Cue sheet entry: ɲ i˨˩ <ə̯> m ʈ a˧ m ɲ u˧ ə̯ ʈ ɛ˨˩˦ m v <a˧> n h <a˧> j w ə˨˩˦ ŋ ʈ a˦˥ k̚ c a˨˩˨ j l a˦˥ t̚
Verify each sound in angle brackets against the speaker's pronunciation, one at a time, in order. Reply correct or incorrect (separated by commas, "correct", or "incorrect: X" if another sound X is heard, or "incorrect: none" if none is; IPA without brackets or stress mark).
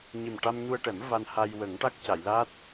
incorrect: none, correct, correct